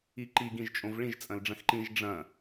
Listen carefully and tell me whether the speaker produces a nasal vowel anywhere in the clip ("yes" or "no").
yes